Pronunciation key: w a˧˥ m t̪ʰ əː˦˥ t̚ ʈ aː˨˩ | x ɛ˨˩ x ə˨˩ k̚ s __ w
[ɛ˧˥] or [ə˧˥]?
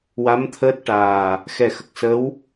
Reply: ə˧˥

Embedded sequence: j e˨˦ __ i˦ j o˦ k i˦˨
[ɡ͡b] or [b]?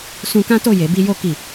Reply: b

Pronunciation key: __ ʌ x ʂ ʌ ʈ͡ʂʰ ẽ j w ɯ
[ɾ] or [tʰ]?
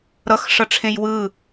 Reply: ɾ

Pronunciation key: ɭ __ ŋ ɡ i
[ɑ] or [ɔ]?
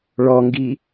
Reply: ɔ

